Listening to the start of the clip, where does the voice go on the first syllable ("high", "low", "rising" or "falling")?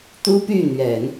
high